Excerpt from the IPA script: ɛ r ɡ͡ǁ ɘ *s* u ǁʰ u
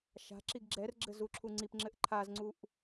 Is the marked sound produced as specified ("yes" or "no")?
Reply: no